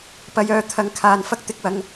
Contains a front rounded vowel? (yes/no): yes